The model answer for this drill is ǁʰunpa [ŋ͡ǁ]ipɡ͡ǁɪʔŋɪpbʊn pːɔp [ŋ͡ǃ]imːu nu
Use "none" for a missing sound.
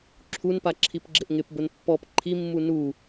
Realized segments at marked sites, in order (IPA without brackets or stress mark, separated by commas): ǁʰ, ǃʰ